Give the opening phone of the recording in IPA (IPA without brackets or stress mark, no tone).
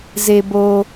z